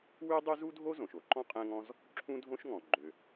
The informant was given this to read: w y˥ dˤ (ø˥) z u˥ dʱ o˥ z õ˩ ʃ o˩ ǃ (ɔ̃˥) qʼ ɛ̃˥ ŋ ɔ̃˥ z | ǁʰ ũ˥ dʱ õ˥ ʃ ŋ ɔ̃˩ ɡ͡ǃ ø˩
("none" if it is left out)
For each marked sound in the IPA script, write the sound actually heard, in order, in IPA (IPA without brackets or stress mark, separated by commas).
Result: y˥, ɔ̃˥